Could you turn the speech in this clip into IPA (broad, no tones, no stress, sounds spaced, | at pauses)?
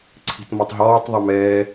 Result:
ǀʰ i̤ t m ɔ tˤ ɦ ɔː tˤ ðˤ ɵ m ɛː